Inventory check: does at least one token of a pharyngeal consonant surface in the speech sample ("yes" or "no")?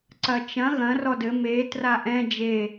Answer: no